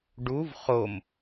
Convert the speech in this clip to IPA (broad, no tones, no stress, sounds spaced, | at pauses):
ɖ u v χ o m